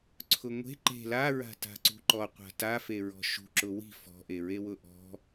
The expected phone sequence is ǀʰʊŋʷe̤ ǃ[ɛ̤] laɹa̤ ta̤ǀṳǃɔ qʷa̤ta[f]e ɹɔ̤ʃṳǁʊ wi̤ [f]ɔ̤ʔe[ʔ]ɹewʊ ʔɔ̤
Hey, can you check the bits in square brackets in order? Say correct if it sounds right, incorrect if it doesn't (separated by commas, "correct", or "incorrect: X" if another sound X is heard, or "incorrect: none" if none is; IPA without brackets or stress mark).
incorrect: e̤, correct, correct, incorrect: none